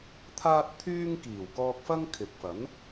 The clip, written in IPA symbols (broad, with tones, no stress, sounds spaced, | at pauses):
t̪ʰ aː˥ t̚ t̪ʰ yː˥ ŋ k iː˨˩ w k ɔː˧ k̚ f ɐ˥ ŋ kʰ ɪ˨ k̚ f ɐ˨˥ n